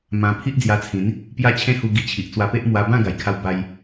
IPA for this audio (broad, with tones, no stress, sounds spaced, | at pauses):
m ã˧ pʰ i˦ ʔ d͡z j a˧ t͡sʰ ĩ˨˦ n | p j a˥˧ t͡ɕʰ ẽ˦ h u˧ ɡ i˧ t͡ɕʰ i˨ ʔ t͡s w a˧ p e˦ ʔ m w a˧ b ã˥˧ ɡ a˨˩ j kʰ a˧ w b a˧ j